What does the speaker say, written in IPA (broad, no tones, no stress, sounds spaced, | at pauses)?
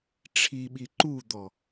ʈ͡ʂʰ i ɓ i ǃ u d̪ ɔ